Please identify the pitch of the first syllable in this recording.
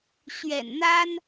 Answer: low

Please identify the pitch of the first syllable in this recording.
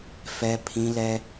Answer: high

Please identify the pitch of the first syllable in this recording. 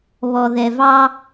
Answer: low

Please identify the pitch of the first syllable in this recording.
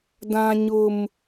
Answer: high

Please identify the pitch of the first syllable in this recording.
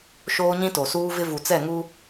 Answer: high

